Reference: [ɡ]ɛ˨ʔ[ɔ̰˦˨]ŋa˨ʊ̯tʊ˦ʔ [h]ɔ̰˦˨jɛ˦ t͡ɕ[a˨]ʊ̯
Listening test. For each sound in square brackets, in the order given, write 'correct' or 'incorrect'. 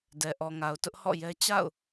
incorrect, incorrect, correct, incorrect

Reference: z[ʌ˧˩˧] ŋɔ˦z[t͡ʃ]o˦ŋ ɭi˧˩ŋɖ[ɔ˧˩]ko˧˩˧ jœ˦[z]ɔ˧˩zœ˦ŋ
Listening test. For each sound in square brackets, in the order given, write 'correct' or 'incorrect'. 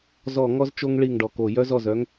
incorrect, correct, correct, correct

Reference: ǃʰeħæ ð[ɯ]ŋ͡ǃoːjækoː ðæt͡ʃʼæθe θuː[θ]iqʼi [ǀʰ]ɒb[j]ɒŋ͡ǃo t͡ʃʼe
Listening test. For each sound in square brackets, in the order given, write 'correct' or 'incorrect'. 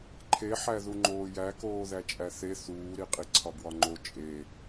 incorrect, incorrect, correct, incorrect

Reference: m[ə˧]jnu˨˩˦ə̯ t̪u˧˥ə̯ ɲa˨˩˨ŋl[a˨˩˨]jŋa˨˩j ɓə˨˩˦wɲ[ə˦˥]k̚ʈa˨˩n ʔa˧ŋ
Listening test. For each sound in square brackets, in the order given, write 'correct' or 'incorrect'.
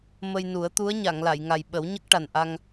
correct, correct, correct

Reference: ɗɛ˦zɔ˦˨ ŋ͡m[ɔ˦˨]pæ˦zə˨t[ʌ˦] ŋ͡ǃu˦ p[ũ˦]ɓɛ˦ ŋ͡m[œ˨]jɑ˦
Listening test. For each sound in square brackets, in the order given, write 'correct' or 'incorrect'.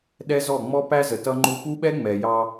incorrect, correct, incorrect, incorrect

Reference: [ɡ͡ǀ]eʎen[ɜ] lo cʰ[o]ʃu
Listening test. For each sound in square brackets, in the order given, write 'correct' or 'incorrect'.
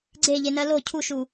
correct, correct, incorrect

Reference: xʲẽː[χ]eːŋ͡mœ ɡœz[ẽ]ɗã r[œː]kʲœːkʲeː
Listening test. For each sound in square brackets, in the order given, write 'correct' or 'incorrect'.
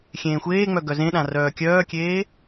incorrect, correct, correct

